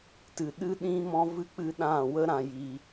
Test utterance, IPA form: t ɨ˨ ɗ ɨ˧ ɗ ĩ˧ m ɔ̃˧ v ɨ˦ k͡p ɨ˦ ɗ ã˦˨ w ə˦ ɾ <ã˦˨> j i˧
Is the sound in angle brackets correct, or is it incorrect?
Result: incorrect